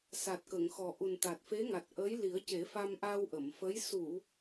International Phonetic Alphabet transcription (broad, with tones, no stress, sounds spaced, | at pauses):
s a˨˩ t̚ k ə˨˩˨ ŋ x ɔ˨˩ ʔ u˨˩ n t̪ a˨˩ t̚ f e˧˥ ŋ a˨˩ t̚ ʔ ə˧˥ j l i˨˩˦ ə̯ c e˨˩˦ f a˧ m ʔ a˧ w ʔ ə˨˩˨ m f ə˧˥ j s u˨˩˨